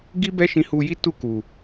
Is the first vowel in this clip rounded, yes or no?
no